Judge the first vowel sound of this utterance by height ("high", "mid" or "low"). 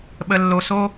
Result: mid